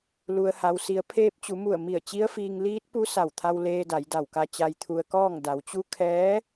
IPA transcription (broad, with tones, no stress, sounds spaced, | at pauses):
l u˩ ə̯ h a˩ w s i˩˧ ə̯ pʰ eː˧ p̚ t͡ɕ u˩˧ m u˧˩ ə̯ m i˧˩ ə̯ t͡ɕ i˧˥ ə̯ f iː˧ ŋ l iː˧˥ t̚ p u˧˥ s a˧˩ w t̪ʰ a˧ w l eː˧ d a˩˧ j d a˧˩ w k a˧ t͡ɕ a˧ j t̪ʰ u˧ ə̯ k ɔː˥˨ ŋ d a˩˧ w t͡ɕ u˧˥ kʰ ɛː˧˥